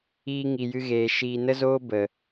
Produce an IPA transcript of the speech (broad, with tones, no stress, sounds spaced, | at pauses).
iː˧ ŋ i˨ j ɨ˧ ɣ eː˨ ʃ iː˧ n ə˦ z oː˦ b ə˨